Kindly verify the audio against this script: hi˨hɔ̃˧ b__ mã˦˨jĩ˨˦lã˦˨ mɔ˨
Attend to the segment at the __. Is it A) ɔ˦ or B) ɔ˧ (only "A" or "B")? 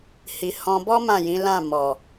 A